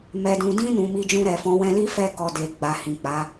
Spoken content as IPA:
m ɛ˨ d ũ˨ d ĩ˧ n ũ˨ m i˧ d͡ʒ ũ˧ ɾ ɛ˨ f ɔ̃˨˦ w ɛ̃˧ l i˦ f ɛ˧ k ɔ˨ d e˨ ɡ͡b a˨ h ĩ˨ k͡p a˨˦

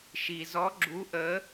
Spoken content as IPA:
ʃ i˩ z ɔ˨˥ ɡ͡ǁ u˨˥ ʔ ə˨˥

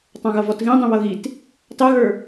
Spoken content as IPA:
tˤ ɑ̃ ɣ ʌ v ɔ t ɣ ĩ dˤ ĩ β ʌ ɣ i t | t ɑ ɣ ə˞

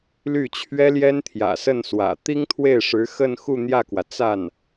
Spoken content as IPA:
l y˥˩ t͡ɕʰ ɥ ɛ˥ l j ɛ˥ n t̪ʰ j ä̰˨˩ s ə˥˩ n s w ä̰˨˩ t̪ i˥ ŋ t̪ʰ w e˥˩ ɪ̯ ʂ ɻ̩˧˥ x ə˥˧ n x u˥˧ n̪ j ä˥˩ k w ä˩ t͡s a˥˩ n

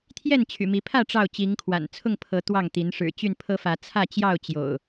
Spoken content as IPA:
t̪ʰ j ɛ˥˨ n t͡ɕʰ y̰˨˩ m i˨˦ pʰ ä˥˨ ʈ͡ʂ ɑ˥˨ ʊ̯ t͡ɕ i˨˦ ŋ kʰ w a̰˨˩ n t͡sʰ ʊ˥˨ ŋ pʰ ɤ˨˦ t̪ w ɑ˥˨ ŋ t̪ i˨˦ n ʂ ɻ̩˨˩ t͡ɕ y˥˨ n pʰ ɤ˦ f ä˨˦ t͡sʰ ä˥˨ t͡ɕ j ɑ˥˨ ʊ̯ t͡ɕ j o̰˨˩ ʊ̯

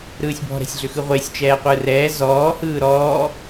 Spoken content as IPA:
ɾ ɯː sʲ b ɔ̤ ɾ ɛ̤ sʲ ɮ ʏ x ɯ ʁʷ ɪː sʲ t͡ʃ ɛː qʷ ɯː r ɛː z ɔː h ɯː ɾ ɔː

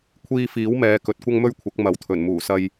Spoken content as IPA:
kʷʰ iː˧ f iː˨˥ w m ɛː˨ k ɵ˨ t̚ kʷ ɐ˥ ŋ m ɵ˥ ɥ kʷʰ ɐ˨˥ k̚ m ɐ˨˥ w t̪ʰ ɵ˨˩ n m uː˨˩ s ɐ˧ j

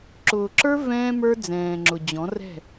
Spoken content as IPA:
ǁ ʊː˨ ǁ ə˞˦ v ɛ̃ː˦ m ə˞˦ d͡z ɛ̃ː˨ ŋ͡ǁ ʊ˨ d͡ʑ ɔ̃˨˦ r ɛ̤˦˨

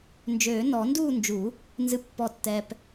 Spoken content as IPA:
n d͡ʒ øː˨˩˦ n ɔ˨˩˦ n d uː˥˨ n d͡ʒ u˨˩˦ | n z ɨ˨ pː ɔ˨ tː ɛ˨ p

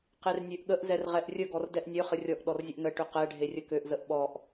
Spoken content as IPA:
q e r nʲ ø ʔ ɠ ə ʔ z ɛ r ʁ ɛ ʔ rʲ ə ɡ ɔ r d ɛ ʔ nʲ ø χ ə rʲ ɔ ʔ ɗ ɔ r zʲ ə ʔ n ə ʈ ʏ q ɛ ɖʱ e rʲ ə k ø ʔ z ə ʔ ɓ ɔ ʔ

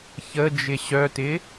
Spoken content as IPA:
ç ə d͡ʒ ɪ ɕ œ t ɪ

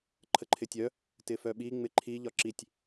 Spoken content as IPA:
ǃʰ ə ǃʰ ɪ tʲ œ | t ɪ f œ ɓ i ŋ͡m ɪ ǃʰ i ʎ ɒ ǁ i tʲ

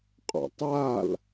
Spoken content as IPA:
qʼ ɔ̰ tˤ a l

